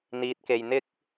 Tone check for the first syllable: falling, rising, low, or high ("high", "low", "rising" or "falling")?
low